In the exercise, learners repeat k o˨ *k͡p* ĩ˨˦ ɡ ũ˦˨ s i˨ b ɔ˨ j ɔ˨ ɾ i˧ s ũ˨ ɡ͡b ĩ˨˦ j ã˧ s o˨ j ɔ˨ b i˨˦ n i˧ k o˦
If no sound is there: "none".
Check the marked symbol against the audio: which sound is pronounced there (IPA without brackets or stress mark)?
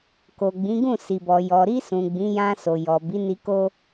ɡ͡b